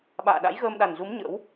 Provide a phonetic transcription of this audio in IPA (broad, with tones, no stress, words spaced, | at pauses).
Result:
ɓa̰ː˧˨ɗa̰˧˥jɣəː˧m ɗa˨˩nzu˨˦m ɲə̰˧˥w